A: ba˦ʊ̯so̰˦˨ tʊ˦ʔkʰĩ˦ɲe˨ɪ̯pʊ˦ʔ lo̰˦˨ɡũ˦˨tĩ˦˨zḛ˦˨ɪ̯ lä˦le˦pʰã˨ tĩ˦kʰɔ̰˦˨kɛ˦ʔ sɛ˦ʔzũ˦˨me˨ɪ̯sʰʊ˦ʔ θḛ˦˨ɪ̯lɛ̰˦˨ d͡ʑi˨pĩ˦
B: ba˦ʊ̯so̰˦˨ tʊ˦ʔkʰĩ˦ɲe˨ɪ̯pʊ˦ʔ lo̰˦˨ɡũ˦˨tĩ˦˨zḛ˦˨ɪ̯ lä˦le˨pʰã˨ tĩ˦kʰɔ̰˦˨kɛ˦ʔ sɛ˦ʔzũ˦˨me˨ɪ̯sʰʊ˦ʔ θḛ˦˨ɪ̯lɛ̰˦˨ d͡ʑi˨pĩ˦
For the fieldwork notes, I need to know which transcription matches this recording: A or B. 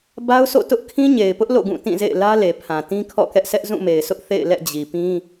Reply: B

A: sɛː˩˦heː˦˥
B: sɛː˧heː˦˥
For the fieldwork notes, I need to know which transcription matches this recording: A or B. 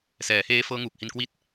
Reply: A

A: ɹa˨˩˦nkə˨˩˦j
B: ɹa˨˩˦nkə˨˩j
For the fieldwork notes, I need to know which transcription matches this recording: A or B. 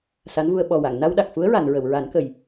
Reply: B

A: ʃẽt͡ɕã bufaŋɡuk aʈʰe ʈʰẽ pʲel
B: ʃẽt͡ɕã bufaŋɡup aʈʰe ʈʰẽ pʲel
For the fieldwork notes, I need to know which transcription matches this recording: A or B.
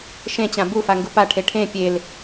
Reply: B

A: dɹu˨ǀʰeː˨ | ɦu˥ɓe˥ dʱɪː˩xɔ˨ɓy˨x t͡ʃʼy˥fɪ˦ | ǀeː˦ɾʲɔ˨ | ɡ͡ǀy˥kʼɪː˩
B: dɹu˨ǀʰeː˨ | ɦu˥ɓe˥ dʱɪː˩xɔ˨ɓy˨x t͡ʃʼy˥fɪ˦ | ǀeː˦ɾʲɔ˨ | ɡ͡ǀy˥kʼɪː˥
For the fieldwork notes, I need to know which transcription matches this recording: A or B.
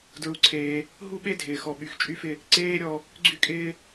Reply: B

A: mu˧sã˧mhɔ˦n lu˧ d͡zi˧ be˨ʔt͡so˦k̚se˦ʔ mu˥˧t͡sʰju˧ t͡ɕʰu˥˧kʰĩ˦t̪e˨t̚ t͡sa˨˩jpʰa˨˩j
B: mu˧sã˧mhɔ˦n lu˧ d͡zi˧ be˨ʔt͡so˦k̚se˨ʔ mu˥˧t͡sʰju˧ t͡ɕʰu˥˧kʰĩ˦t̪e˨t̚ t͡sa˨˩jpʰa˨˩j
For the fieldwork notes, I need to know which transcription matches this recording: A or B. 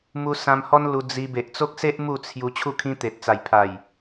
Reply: A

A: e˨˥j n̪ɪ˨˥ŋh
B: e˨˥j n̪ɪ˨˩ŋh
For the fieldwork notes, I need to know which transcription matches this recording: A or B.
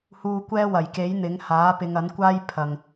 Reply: A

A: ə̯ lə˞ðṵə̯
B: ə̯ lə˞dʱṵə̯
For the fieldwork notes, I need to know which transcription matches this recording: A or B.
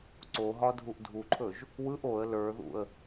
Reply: A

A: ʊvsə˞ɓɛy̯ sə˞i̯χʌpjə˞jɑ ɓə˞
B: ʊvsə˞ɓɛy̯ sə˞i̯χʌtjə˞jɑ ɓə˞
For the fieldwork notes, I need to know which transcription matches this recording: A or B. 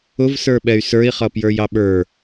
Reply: A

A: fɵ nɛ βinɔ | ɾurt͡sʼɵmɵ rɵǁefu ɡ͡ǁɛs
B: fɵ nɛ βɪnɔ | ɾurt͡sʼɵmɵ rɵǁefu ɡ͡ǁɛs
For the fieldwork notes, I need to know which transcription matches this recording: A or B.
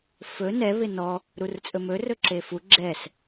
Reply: B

